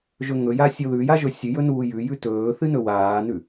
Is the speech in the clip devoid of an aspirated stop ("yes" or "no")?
yes